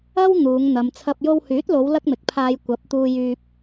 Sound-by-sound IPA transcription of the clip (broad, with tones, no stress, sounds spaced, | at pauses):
ɐ˥ w n̪ uː˨˧ ŋ n̪ ɐ˨ m t͡sʰ ɐ˧ p̚ j o˧ w h yː˨˥ t̚ l o˨˧ w l ɐ˥ k̚ m ɪ˨ k̚ pʰ aː˧ j kʷ ɐ˨˥ p̚ t̪ uː˧ j yː˧ p̚